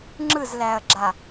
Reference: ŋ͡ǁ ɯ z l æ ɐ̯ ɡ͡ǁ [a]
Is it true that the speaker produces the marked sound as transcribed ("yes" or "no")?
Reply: yes